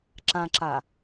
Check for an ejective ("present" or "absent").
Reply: absent